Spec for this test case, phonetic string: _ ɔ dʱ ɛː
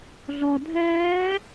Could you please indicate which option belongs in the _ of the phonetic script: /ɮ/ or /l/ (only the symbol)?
ɮ